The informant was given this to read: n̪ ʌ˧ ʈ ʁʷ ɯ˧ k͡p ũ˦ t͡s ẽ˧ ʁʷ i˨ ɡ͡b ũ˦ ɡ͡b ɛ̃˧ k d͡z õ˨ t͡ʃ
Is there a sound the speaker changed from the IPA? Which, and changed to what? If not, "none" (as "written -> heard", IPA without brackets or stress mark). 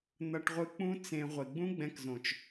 d͡z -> z